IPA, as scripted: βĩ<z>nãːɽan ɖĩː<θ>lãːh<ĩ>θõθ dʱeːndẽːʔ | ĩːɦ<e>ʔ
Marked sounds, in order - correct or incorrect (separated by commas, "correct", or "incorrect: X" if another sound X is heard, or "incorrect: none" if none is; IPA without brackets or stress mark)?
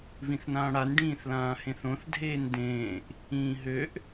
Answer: incorrect: θ, correct, incorrect: ẽ, incorrect: ø